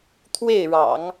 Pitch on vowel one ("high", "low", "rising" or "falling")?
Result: falling